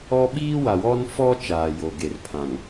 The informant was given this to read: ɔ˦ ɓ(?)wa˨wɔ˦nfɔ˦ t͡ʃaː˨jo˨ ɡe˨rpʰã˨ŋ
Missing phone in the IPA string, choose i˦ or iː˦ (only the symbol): iː˦